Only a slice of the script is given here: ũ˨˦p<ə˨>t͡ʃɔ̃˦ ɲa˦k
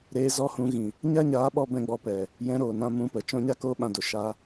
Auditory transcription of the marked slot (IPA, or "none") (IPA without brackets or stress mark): ə˨